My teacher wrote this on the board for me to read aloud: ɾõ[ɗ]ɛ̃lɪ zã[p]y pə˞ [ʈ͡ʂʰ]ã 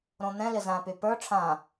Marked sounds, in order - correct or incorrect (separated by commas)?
incorrect, correct, correct